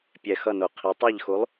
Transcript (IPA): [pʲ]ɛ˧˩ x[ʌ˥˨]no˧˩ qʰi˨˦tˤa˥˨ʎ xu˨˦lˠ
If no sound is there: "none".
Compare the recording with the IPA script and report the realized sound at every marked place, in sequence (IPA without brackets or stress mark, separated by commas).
pʲ, ʌ˥˨